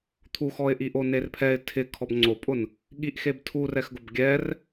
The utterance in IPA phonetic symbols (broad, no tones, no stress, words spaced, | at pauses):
t̪ʰuxɔɪ̯ʔiʔo nerpʰɛɪ̯ tʰɪ kʰɔbŋ͡ǀopʼʊn | ɠiʔxeb tʰurɛxɡʊb ɡʲɛr